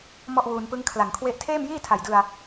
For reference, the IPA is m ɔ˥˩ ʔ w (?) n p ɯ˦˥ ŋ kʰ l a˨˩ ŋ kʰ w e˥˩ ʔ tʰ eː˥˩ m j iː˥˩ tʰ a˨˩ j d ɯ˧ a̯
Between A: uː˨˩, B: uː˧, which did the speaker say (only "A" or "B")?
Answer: B